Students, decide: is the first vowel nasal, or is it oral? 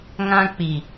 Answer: nasal